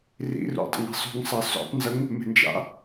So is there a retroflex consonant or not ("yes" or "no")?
no